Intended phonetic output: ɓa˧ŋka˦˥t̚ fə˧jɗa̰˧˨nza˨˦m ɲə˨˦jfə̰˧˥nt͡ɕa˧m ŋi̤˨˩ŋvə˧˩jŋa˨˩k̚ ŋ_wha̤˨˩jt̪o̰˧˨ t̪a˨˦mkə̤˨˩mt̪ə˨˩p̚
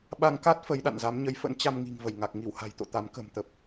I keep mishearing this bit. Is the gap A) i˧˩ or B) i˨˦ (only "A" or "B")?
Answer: A